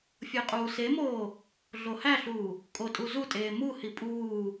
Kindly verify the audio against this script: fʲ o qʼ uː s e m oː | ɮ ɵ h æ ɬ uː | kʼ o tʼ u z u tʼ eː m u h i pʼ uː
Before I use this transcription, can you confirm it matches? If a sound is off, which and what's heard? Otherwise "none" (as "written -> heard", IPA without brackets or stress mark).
ɵ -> o